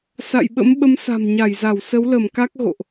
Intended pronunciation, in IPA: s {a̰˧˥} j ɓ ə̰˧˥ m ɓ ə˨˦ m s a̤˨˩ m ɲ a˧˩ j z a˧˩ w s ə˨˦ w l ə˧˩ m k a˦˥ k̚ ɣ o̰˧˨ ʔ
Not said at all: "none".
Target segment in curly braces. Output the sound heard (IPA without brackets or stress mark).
a̰˧˨